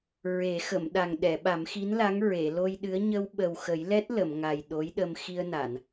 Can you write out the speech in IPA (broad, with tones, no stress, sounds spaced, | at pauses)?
ɹ e˨˩˦ x ə˨˩˨ m ɗ a˨˩ ŋ ɗ ɛ˨˩˨ ɓ a˨˩˦ m x i˧˥ n l a˧˥ ŋ ɹ e˨˩˨ l o˧ j ɗ ɨ˧˥ ə̯ ɲ ə˧ w ɓ ə˨˩ w x ə˨˩˦ j l ɛ˦˥ t̚ l ə˨˩˨ m ŋ a˨˩ j ɗ o˧˥ j ɗ ə˧ m x i˧ ə̯ n a˨˩˨ n